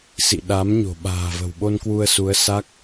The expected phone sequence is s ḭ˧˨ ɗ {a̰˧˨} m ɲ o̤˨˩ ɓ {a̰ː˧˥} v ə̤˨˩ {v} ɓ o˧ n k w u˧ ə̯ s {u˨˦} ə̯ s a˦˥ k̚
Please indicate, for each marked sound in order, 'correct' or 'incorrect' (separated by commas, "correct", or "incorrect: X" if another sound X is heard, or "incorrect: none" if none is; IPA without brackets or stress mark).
incorrect: a˨˦, incorrect: a̤ː˨˩, incorrect: w, correct